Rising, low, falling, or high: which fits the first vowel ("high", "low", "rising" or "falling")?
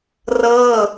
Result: falling